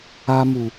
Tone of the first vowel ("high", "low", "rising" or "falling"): high